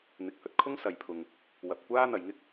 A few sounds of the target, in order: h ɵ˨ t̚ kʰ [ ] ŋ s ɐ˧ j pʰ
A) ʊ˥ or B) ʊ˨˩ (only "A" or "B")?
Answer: A